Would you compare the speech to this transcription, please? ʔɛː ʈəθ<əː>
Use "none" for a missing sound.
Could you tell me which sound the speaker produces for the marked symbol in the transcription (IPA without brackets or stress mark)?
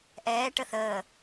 əː